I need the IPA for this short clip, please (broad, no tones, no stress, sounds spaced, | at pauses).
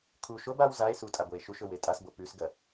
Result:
kʰ u ʃ o b a w z a e̯ s u tʼ a b o e̯ ʃ u ʃ ɵ w e tʼ a s b o p ʉ s ɡ ɐ